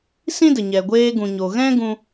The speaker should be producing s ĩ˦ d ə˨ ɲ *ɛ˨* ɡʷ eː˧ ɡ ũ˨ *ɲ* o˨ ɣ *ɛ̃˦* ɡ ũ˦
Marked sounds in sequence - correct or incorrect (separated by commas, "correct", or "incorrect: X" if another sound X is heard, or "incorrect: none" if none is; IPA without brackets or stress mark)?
correct, correct, correct